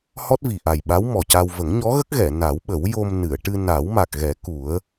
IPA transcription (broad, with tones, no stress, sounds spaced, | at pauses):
h ɔ˦˥ t̚ v i˨˩ ʔ a˨˩ j ɓ a˧˥ w m ɔ˨˩ c a˧ w v ə˨˩˦ ŋ ɲ ɔ˧˥ ɣ ə˦˥ k̚ ɣ ɛ˨˩˨ n a˨˩˦ w ɓ ə˨˩˦ w j o˧ m n ɨ˨˩˨ ə̯ ʈ ɨ˧ n a˨˩˦ w m a˨˩ k̚ ɣ ɛ˨˩˦ k u˨˩˦ ə̯